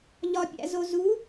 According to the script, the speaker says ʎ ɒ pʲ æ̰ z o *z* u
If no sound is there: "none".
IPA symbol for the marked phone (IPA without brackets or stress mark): z